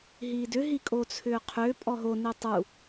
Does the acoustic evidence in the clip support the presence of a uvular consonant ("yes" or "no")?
yes